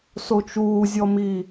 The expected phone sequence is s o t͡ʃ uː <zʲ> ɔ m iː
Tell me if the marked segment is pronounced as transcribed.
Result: yes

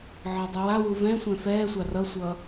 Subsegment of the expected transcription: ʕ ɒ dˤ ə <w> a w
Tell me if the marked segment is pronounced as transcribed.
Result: yes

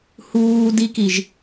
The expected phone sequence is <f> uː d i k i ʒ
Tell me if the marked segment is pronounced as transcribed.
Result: no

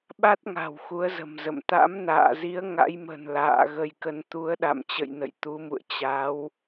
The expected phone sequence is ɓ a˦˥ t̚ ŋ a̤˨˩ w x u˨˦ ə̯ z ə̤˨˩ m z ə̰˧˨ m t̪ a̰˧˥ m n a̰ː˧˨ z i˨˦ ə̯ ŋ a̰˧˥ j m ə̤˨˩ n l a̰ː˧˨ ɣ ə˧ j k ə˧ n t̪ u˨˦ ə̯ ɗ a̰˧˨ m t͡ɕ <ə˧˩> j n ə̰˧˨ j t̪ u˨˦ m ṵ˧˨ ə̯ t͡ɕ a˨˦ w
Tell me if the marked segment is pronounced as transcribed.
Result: no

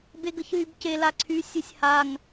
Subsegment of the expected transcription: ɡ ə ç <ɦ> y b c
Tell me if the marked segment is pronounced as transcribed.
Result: yes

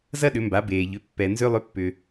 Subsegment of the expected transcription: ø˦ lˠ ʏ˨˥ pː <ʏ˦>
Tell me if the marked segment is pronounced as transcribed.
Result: no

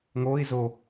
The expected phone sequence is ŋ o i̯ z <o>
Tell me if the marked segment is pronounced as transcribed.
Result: yes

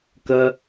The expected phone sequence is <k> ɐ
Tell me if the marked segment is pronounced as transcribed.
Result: yes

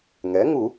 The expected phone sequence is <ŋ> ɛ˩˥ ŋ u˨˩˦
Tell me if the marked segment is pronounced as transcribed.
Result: yes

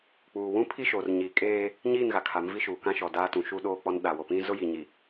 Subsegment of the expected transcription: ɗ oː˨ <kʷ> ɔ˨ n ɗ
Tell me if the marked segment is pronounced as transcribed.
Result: no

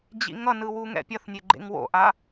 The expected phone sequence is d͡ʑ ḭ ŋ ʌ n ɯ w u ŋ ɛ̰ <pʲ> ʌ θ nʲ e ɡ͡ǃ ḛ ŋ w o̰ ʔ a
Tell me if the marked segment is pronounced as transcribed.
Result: yes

